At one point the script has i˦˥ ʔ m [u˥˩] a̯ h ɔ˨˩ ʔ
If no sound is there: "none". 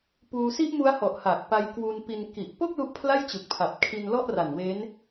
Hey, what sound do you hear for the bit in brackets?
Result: u˦˥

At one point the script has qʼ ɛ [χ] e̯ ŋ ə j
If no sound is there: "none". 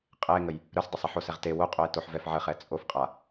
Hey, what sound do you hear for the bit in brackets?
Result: none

